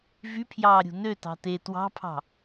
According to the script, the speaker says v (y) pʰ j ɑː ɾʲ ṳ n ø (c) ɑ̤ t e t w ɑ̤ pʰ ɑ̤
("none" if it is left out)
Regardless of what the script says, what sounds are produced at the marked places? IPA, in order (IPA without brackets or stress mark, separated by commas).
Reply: y, t